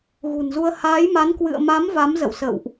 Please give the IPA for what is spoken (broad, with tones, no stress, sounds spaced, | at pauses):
ɣ ṳ˨˩ n z u˧ ə̯ h aː˨˦ j m a˨˦ n k w ɨ̰˧˨ ə̯ m a˨˦ m v a˨˦ m z ə̰˧˨ w s ə̰˧˨ w ʔ